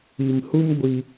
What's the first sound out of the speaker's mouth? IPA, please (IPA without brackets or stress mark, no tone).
i